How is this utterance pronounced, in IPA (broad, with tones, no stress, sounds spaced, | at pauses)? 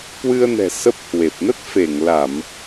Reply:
k w ɨ˧ ə̯ n ɛ̤˨˩ s ə˦˥ p̚ h w e˨˩ p̚ n ə˦˥ t̚ f e˧˩ ŋ l a˧˩˨ m